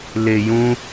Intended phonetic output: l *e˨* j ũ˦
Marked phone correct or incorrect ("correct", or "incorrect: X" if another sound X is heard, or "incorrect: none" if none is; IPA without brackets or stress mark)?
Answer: correct